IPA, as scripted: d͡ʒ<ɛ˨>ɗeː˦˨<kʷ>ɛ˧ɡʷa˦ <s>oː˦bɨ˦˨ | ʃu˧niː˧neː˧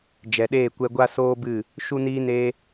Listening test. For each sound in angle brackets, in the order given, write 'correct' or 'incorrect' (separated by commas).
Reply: correct, correct, correct